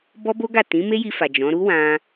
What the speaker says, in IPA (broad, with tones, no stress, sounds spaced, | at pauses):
b ɔ˦ b o˦ ɡ a˦˨ t ĩ˨˦ m e˦ j i˧ f a˨ d͡ʒ ɔ̃˨˦ ɾ u˦ w ã˧